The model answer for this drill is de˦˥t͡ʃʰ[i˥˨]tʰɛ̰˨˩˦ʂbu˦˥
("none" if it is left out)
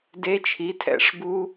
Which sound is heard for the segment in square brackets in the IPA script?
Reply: i˩˥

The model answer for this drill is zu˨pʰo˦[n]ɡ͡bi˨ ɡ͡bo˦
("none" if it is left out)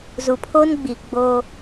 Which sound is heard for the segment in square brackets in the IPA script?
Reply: n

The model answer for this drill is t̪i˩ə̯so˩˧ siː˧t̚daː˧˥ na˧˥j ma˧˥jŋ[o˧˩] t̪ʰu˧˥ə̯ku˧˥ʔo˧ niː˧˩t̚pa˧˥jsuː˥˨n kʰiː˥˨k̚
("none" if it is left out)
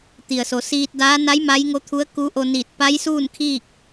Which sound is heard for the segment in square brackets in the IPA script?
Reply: o˧˥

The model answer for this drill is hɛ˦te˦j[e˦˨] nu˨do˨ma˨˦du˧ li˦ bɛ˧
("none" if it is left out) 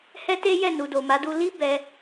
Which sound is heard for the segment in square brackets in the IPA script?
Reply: ɛ˦˨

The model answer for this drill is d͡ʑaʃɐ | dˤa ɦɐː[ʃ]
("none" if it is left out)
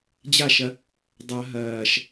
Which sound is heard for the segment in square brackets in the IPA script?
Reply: ʃ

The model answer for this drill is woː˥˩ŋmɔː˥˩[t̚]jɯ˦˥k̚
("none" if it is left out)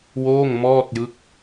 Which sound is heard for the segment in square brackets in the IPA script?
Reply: t̚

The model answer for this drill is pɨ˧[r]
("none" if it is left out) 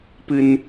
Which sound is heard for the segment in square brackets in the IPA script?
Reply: n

